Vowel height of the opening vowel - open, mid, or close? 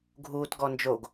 close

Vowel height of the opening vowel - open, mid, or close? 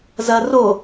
open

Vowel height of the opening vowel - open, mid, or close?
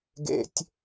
mid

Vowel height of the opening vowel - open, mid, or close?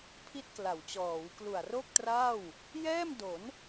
close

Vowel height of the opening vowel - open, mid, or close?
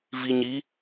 close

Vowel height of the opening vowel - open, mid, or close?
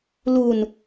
close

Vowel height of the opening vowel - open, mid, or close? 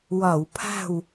open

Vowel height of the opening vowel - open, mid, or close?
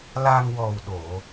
open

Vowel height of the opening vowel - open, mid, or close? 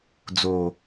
mid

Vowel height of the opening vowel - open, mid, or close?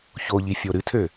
mid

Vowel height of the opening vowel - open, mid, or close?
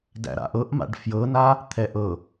open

